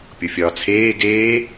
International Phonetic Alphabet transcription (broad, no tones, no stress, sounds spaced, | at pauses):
pʲ o fʲ ɒː t͡sʰ eː ɡ eː